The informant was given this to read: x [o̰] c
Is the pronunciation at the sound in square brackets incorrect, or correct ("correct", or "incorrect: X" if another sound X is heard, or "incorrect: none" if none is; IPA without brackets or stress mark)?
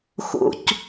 correct